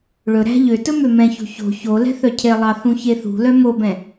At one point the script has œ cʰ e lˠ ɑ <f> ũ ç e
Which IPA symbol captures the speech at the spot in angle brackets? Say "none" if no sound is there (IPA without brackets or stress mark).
θ